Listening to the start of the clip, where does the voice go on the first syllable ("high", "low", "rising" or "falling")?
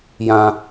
low